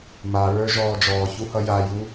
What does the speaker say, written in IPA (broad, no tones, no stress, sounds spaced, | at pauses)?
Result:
m a ɹ ə˞ ʒ ɔː d͡ʒ ɔː ç u h ʌ j a j u